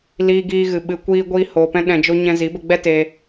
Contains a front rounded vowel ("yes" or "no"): no